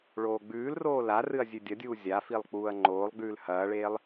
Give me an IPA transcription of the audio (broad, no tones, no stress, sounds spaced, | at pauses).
ɭ oː ɡ͡b ʉː l r oː l a r ɨ ɐ̯ zʲ ʉ dʲ ɐ dʲ uː zʲ a f i lˠ k͡p uː ɐ̯ ŋ͡ǃ oː lˠ ɡ͡b ʉː l h ɐː ɭ eː lˠ